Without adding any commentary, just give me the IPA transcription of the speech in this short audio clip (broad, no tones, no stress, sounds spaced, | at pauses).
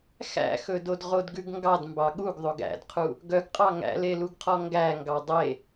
x æ̰ x ɵ d o d ʁ o d ɡ ʉ ɡ ŋ ɡ ɑ d m b ɑ ɠ u ɡ ðˤ o ɡ æ̰ d qʰ u | ɡ œ ɡ qʼ ɑ ŋ æ̰ l e l u ɡ qʰ ɔ ŋ ɡ æ ŋ ɡ ɑ dˤ e